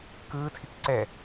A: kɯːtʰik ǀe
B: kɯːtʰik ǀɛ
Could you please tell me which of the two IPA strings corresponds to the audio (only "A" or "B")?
B